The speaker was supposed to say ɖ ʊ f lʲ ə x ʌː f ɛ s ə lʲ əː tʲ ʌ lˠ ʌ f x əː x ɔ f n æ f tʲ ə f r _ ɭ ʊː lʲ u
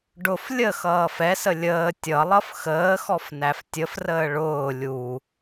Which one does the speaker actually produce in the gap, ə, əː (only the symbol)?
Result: əː